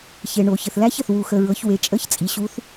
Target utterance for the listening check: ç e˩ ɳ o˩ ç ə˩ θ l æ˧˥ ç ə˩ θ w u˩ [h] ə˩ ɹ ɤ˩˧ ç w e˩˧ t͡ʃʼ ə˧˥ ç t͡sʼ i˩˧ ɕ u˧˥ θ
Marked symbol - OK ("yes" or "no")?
no